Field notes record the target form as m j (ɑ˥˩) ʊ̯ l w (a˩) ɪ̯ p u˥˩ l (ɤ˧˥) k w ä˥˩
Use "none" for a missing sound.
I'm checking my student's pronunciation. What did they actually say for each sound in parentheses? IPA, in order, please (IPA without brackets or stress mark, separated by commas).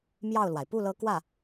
ɑ˥˩, a˩, ɤ˧˥